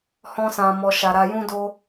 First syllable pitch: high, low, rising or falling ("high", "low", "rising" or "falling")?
high